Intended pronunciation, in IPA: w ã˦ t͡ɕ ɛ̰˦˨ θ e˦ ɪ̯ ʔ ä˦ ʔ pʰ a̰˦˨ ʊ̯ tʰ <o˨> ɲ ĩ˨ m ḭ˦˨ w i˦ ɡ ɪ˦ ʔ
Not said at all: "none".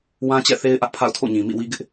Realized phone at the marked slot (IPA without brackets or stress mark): o̰˦˨